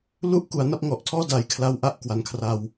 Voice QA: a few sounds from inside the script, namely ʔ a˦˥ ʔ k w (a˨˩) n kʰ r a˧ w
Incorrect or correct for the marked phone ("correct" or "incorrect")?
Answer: incorrect